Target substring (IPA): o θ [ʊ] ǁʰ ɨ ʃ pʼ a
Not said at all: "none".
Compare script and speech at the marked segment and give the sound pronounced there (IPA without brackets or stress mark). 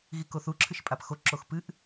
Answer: u